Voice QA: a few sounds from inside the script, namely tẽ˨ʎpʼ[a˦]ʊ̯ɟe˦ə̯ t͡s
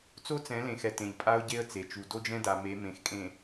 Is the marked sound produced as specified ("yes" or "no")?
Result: yes